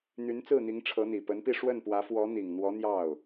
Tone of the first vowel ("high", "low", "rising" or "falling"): rising